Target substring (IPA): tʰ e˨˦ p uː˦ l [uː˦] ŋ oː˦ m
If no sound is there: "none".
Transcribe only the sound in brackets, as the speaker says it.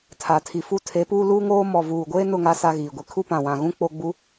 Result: uː˦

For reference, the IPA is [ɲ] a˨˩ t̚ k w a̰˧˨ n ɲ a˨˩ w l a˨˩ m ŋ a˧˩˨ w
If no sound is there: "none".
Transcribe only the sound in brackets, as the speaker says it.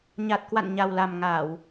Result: ɲ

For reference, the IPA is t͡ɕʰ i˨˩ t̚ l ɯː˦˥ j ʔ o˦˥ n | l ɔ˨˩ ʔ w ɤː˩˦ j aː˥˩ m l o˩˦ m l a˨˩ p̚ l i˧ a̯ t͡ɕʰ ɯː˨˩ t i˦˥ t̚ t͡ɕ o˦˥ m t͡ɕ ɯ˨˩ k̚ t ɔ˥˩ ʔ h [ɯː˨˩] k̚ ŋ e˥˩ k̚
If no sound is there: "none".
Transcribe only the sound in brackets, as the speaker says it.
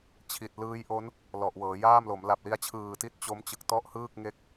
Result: ɯː˥˩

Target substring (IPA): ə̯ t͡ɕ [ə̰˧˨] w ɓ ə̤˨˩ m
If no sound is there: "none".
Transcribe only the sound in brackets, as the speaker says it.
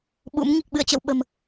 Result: ə̰˧˨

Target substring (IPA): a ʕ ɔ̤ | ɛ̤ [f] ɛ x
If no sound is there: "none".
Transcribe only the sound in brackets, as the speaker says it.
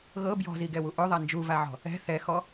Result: θ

